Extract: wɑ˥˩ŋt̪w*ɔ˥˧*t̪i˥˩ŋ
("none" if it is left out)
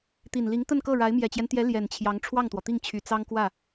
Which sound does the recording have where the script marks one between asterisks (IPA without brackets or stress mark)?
ɔ˩